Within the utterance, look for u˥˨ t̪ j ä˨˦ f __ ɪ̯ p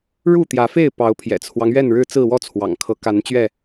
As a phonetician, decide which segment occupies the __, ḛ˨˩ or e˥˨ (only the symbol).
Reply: e˥˨